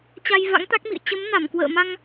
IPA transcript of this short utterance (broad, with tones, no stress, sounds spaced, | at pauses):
t͡ɕ a˧ j v a̰˧˥ ŋ t̪ a˦˥ k̚ m ḭ˧˨ ə̯ t͡ɕ ə˨˦ m n a˧˩ m k w ə̰ː˧˨ m a˧ ŋ